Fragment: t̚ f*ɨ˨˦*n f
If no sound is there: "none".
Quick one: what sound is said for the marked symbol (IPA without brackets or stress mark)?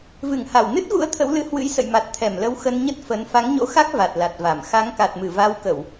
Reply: ə˨˦